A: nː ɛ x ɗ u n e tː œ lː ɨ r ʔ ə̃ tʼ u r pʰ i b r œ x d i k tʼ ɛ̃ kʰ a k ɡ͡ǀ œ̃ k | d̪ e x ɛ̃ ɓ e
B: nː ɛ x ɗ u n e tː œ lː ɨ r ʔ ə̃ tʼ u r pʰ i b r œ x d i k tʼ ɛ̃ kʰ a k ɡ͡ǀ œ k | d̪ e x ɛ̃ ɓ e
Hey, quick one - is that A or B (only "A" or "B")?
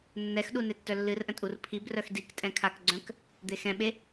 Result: A